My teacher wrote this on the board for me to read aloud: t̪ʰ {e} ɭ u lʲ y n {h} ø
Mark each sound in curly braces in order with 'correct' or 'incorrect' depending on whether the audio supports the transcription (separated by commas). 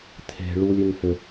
incorrect, correct